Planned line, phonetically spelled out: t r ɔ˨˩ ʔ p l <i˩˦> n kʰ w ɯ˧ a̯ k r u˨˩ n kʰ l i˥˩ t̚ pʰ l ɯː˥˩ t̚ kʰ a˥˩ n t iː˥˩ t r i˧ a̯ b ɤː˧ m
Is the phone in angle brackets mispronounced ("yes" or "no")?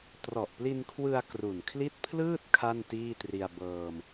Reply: yes